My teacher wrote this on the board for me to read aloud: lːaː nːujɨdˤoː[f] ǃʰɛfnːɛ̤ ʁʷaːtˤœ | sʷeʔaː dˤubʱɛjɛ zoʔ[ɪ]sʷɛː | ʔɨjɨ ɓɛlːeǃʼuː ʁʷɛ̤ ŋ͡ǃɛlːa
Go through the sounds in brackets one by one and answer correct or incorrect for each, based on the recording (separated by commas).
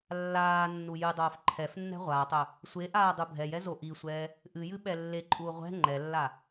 correct, incorrect